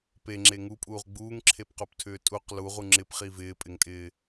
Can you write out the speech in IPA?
p e ŋ͡ǁ e ŋ u pʼ uː ʁ ɡ͡b uː ŋ ǁʰ e p q o p tʰ ʏː tʼ u q l u ʁ u ŋ͡ǁ ɪ p χ i v ɪː pʼ ɪ ŋ tʼ ɪː

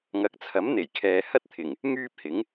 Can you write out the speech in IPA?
ŋ ɐ˨˥ k̚ t͡sʰ ɐ˨˥ m n̪ e˨˩ j kʰ ɛː˨ h ɐ˥ t̚ t̪ʰ ɪ˨˩ ŋ | ŋ yː˥ p̚ h ɪ˨˥ ŋ

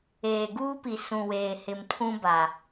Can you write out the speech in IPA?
eː˨ ɡ uː˦ p i˨ s ũ˨ w eː˨ h ɪ˨ m tʰ ũ˦ b a˨

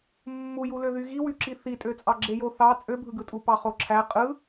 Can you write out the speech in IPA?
mː u j u l ø ð y ɣ i w y ǁ i θ i tʼ ø t͡sʼ ɑ ɡ͡ǁ e j o θ ɑ t͡sʼ ø bʱ ɯ ɡ ɯ tʼ u p ɑ χ o ǁʰ æ qʼ ɯ

